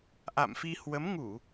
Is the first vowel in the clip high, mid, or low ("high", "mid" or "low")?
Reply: low